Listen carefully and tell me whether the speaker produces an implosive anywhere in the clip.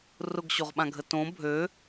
yes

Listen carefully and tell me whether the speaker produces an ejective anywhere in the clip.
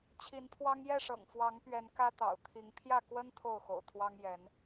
no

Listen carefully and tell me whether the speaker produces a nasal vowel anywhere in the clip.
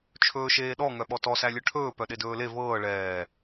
no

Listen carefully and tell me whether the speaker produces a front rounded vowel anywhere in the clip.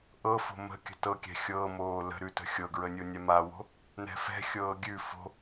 no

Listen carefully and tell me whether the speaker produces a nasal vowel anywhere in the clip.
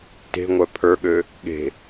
no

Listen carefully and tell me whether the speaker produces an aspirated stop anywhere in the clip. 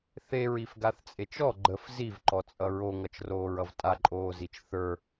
no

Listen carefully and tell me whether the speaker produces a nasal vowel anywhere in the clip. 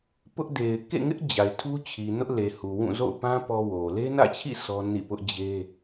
yes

